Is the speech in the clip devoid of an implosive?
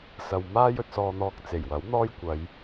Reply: yes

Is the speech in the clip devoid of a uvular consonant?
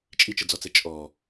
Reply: yes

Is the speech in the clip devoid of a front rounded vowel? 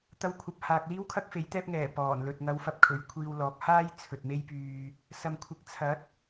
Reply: no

